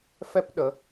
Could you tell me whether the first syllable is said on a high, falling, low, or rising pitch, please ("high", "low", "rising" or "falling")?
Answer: high